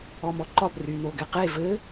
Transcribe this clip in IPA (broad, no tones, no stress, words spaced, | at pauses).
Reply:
ɔmɔǃɒb rynoɡɛqe vɘ